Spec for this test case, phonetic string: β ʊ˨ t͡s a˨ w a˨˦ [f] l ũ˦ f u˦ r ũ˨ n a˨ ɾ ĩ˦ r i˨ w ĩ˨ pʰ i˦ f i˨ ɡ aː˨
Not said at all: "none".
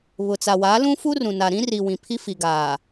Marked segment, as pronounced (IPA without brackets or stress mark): none